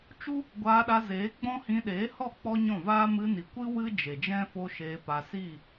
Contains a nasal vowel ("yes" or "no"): yes